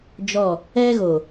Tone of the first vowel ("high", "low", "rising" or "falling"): falling